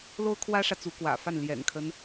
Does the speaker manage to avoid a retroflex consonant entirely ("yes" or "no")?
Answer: no